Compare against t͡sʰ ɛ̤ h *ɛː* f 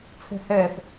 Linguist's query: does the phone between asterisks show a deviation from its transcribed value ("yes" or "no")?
no